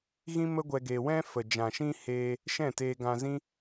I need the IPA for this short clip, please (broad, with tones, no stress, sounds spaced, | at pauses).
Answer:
ɣ ĩ˦ m ə˦ ɡʷ ɛ˧ ɡ e˧ w ɛ̃˦ f ə˨ d͡ʒ ã˨ ʃ ĩ˦ h eː˦ | ʃ ɛ̃˦˨ t eː˧ ɡ ã˧ z ĩ˦